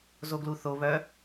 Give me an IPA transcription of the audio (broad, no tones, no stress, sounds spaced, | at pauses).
z o ɡ l u θ o β œ